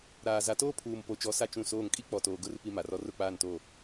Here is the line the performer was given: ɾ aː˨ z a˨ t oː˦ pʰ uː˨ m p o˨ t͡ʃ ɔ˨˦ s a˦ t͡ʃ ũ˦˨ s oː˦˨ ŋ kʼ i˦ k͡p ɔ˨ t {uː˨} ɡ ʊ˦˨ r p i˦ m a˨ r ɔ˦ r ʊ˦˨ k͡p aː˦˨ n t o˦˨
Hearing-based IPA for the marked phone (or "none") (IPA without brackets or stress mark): oː˨